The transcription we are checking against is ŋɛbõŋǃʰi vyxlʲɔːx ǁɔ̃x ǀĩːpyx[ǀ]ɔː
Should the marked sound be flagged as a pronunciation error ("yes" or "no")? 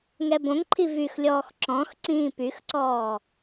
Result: no